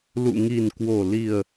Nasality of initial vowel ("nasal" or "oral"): oral